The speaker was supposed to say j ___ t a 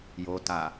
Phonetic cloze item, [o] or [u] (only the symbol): o